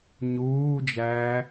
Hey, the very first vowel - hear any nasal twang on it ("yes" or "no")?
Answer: no